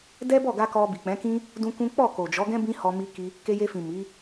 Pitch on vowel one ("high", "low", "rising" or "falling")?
high